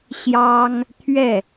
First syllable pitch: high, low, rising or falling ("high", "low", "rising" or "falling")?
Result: high